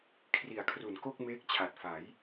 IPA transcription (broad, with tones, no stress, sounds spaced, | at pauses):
kʰ r i˨˩ a̯ kʰ r u˩˦ n k o˥˩ k̚ m eː˦˥ k̚ t͡ɕʰ a˨˩ t̚ f a˩˦ j